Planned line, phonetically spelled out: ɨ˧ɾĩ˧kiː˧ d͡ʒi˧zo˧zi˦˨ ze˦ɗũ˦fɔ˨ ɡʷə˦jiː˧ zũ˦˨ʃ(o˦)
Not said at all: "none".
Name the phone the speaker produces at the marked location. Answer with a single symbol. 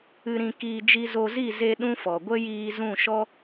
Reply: ɔ˦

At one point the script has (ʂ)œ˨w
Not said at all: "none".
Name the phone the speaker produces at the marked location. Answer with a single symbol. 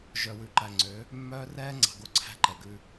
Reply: ʒ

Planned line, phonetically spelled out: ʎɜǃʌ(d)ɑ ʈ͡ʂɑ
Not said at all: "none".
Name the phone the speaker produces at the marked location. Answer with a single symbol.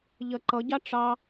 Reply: ɟ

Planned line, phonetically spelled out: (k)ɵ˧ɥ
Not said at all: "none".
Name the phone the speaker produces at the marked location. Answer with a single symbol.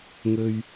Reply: ŋ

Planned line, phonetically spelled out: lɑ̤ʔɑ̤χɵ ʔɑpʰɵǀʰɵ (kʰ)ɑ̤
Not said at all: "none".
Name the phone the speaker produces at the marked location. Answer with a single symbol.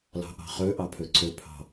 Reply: pʰ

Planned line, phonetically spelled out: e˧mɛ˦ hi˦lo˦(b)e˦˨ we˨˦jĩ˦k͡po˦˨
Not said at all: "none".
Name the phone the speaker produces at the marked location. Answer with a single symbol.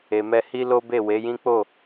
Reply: b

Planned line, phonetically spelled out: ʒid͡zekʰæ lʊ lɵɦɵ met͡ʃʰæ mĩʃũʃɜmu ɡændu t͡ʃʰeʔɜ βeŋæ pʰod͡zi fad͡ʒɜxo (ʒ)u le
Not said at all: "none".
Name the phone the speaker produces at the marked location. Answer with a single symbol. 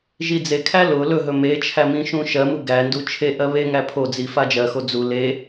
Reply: d͡z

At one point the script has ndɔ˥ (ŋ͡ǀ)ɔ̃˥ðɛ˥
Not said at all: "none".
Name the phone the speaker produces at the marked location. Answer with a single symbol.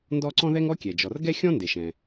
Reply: ǀ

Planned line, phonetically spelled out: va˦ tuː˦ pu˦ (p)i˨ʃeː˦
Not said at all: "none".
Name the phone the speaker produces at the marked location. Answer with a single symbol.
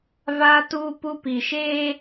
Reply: p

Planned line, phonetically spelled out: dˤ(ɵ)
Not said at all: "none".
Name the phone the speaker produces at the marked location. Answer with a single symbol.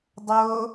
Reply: o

